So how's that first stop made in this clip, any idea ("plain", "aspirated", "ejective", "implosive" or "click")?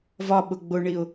implosive